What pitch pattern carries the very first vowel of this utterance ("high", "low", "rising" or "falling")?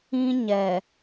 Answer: high